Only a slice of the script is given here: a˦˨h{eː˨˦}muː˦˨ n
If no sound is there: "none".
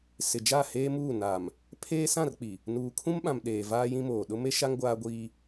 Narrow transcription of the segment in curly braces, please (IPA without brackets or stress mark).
eː˦